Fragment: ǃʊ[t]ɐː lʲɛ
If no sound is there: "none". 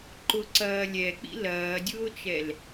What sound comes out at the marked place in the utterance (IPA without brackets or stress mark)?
ǀ